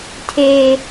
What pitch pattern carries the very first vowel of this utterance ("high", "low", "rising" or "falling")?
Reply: high